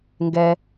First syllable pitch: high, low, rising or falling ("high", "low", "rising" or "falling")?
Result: low